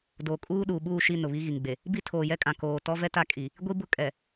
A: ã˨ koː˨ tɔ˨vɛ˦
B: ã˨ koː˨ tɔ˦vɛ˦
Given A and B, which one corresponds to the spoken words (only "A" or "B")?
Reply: B